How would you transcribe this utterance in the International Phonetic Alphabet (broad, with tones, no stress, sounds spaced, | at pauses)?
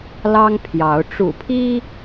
l ɑ˦ ŋ pʰ j ɑ˨˦ ʊ̯ ʈ͡ʂ ṵ˨˩ pʰ i˦